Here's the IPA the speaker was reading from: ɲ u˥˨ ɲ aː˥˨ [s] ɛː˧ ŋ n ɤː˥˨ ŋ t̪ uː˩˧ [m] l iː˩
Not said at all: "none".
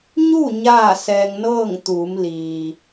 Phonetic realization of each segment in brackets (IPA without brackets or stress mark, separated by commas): s, m